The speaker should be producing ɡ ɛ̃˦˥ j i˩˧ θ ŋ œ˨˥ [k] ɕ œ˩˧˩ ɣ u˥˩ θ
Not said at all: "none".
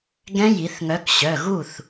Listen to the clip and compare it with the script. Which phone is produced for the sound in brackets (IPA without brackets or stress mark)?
k